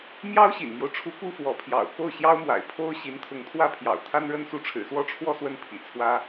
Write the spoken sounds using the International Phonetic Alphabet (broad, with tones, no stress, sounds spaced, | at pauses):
m j ɑ˥ ʊ̯ ɕ ḭ˨˩ n m j o˦ ʊ̯ ʈ͡ʂʰ u˧˥ k u˥ f w ɔ˧˥ pʰ j ɑ̰˨˩ ʊ̯ k o˥˩ ʊ̯ ɕ j ɑ˥ ʊ̯ m w a̰˨˩ ɪ̯ pʰ o˥ ʊ̯ ɕ i˧˥ n t̪ʰ ʊ˧˥ ŋ t̪ʰ w ä˥ pʰ j ɑ̰˨˩ ʊ̯ t̪ʰ a˥ n ɻ ə˥ n s u˧˥ ʈ͡ʂʰ ɻ̩˨˩ s w ɔ˥˧ ʈ͡ʂʰ w ɔ˥˧ s w ə˥˩ n pʰ ḭ˨˩ t͡sʰ w ä˥